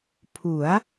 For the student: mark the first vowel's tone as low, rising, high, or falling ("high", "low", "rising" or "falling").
rising